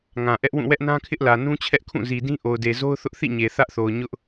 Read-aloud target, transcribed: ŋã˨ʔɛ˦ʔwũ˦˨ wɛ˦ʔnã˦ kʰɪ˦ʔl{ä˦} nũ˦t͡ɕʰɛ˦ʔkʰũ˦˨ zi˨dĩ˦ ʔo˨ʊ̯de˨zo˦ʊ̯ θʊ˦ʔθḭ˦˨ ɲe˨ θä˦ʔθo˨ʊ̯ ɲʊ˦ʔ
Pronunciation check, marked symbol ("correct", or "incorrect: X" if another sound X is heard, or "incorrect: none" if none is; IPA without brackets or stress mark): incorrect: ä˨